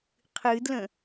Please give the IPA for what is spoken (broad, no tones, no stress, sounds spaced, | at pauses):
qʰ ɨ d l ə̃